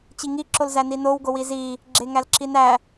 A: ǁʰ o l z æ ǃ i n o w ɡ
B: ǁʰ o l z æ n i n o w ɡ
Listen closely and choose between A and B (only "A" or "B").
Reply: B